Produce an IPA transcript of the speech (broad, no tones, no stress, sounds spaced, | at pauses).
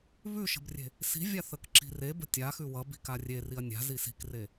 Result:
β ʉ ʃ ə̤ b rʲ e̤ | s i̤ vʲ a θ ə k ǁ i̤ r e b ə̤ tʲ a x ʉ w ʌ b i̤ k a rʲ e r i ɐ̯ nʲ a̤ z i s i̤ k r e